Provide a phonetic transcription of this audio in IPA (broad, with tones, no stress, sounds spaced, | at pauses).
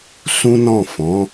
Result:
s ũ˦ n ɔ̃˦˨ f ɔ̃˨˦